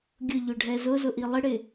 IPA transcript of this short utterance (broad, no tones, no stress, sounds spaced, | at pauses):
ɡʲ ʊ ʎ ʊ ɖʱ ɛ z ʊ z ʊ ʔ i lˠ ɪ ɽ ɪ